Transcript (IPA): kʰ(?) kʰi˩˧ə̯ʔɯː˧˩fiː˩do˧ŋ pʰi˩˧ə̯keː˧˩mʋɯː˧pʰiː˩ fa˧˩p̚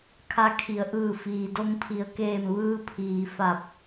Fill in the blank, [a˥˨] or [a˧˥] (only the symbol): a˧˥